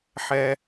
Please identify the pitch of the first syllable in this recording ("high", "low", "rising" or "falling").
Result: high